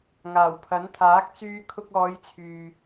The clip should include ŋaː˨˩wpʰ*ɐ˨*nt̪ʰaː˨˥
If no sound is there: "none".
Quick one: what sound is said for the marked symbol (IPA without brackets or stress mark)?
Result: ɐ˨˥